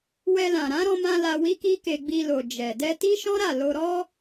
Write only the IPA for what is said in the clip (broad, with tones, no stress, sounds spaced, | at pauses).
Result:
w ɛ˧ l ã˨ ɾ ã˨˦ ɾ ɔ̃˧ m ã˧ l a˧ w i˦ k i˦ k e˧ ɡ͡b i˧ l o˨ d͡ʒ ɛ˨ d ɛ˧ t i˦ ʃ ɔ̃˦ ɾ a˦˨ l o˧ ɾ ɔ˦